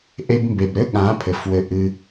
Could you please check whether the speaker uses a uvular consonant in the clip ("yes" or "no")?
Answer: no